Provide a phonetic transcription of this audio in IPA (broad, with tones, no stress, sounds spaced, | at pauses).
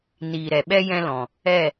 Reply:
n iː˨ ɾ ɛ˨ ɓ ɛ˧ j ɛ̃˧ l ɔ̃˨ | ɛ˦˨